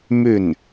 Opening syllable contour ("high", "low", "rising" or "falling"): falling